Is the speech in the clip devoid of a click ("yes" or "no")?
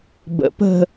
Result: yes